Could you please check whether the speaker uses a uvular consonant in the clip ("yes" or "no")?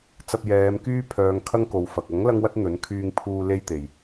no